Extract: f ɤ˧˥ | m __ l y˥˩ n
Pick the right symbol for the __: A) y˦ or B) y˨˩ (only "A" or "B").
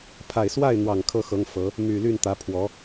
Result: B